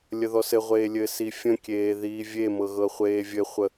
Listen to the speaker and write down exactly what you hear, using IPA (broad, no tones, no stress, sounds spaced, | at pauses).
lʲ ə ð ɔ s ɘ ʁʷ eː lʲ ɘ s i fʲ ə̃ kʲ eː ð iː vʲ e m ɤ ɣ ɤ χʷ eː vʲ ɘ χʷ ə